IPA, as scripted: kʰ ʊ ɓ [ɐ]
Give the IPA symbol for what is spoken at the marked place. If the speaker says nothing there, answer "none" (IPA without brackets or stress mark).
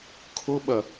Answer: ɐ